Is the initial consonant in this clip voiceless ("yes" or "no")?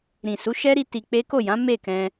no